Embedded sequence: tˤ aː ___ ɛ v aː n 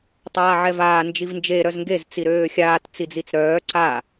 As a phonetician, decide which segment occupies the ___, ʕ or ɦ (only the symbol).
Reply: ʕ